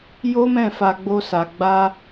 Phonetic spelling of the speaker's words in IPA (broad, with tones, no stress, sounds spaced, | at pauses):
j o˦ m ɛ̃˦˨ f a˧ ɡ͡b o˦ s a˧ ɡ͡b a˦